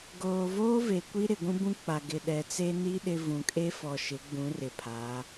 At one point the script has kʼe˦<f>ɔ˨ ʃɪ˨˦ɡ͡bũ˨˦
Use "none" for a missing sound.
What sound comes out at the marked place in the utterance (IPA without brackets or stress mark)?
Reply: f